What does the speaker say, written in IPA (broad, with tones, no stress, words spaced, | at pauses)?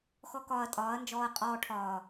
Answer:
xɔ˦kɒː˧ɐ̯tʼɒː˨˦ɐ̯nd͡ʒɔː˧ɐ̯ qʼɔː˧ʈʰɒː˨